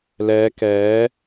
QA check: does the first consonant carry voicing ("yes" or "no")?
yes